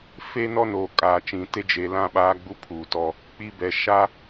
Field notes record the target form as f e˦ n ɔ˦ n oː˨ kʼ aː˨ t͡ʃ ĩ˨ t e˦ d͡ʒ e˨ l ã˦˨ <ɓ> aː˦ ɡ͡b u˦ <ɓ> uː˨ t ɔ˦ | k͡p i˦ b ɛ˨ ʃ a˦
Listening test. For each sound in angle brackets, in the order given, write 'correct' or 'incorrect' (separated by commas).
correct, incorrect